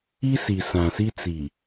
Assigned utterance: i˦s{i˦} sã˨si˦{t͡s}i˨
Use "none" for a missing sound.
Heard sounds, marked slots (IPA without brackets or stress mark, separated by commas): i˨, t͡s